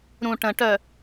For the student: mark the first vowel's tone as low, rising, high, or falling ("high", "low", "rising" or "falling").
low